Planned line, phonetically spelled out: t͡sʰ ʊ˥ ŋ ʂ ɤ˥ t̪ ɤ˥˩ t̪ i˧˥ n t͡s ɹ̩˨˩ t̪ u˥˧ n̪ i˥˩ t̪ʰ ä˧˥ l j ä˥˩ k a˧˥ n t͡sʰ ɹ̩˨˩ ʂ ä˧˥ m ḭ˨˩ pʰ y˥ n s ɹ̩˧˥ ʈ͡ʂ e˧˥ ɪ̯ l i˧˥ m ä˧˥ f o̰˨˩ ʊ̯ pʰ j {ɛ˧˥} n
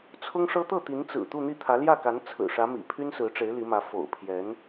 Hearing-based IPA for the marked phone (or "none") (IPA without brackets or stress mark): ɛ˧˥